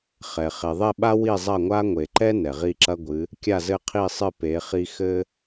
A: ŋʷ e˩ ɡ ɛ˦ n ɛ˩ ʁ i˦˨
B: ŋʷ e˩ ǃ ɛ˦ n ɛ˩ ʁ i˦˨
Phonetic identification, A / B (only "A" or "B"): B